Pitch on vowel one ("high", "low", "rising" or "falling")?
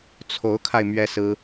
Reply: rising